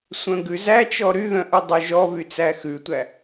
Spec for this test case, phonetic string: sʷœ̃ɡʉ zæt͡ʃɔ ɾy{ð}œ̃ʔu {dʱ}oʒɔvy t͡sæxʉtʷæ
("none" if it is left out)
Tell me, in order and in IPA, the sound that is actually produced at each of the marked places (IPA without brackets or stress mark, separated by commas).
ð, dˤ